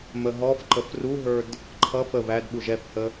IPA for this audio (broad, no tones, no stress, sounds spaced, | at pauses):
m ə ɦ ɔ f ǃ ə f r u ɦ ə˞ d | ǃʰ ʌ f ə β æ d ɓ u ʒ ɛ f h ə